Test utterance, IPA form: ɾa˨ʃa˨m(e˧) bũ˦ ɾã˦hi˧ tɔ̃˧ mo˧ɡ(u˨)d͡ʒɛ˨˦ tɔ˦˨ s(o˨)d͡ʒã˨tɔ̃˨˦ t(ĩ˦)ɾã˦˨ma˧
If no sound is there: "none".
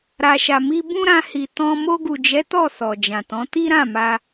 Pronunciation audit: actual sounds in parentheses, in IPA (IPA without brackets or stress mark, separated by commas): i˧, u˨, ɔ˨, i˦